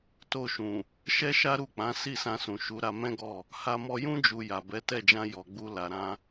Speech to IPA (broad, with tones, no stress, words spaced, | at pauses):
to˧ʃũ˨ | ʃɛ˦ʃa˦ɾu˦˨k͡pã˨˦ si˦˨sã˧sũ˨ ʃu˨˦ ɾa˧mɛ̃˦ɡɔ˦˨ | ha˧mɔ˧jũ˦ d͡ʒu˧ ja˨bɛ˨˦ tɛ˦˨d͡ʒã˧ jɔ˨ɡ͡bu˧ la˨ɾã˧